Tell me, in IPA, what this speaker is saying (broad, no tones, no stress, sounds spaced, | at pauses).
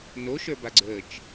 n o ʃ ə˞ b a ɡ͡ǀ ə t͡ʃ